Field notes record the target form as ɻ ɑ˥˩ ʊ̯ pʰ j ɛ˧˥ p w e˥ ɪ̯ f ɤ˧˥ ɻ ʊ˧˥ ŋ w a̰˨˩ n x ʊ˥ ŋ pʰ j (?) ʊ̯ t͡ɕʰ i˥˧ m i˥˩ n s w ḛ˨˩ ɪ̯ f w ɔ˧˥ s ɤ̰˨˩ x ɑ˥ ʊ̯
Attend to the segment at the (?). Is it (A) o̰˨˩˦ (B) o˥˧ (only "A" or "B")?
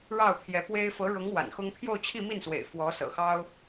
B